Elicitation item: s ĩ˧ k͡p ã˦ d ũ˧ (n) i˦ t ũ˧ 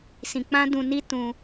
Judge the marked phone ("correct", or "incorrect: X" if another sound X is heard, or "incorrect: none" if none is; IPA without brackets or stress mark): correct